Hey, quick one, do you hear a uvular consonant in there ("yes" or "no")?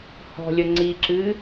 no